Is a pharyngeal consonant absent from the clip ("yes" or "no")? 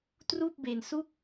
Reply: yes